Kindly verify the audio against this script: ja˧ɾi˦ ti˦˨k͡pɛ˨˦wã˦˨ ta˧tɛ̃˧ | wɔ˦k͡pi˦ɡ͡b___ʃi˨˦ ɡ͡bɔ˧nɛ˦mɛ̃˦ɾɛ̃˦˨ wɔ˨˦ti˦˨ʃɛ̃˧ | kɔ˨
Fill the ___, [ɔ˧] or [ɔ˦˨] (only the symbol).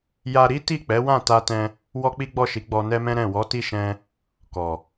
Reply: ɔ˦˨